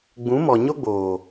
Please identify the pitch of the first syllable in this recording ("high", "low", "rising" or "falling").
rising